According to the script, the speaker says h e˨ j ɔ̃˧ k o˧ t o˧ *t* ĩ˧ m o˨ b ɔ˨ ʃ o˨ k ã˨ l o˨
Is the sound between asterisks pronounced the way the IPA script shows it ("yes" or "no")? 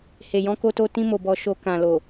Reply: yes